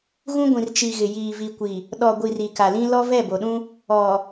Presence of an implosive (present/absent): present